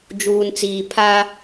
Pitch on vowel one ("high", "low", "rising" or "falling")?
low